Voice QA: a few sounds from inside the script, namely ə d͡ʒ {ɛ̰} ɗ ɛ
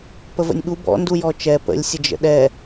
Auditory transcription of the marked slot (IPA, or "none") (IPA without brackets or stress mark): ə̰